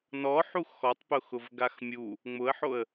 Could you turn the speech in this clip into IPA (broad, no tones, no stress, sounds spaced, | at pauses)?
n ɔ ħ u x ɔ tˤ p ʊ x ʊ v ɡ a x mʲ u | ŋ͡m ʊ ə̯ ħ o ə̯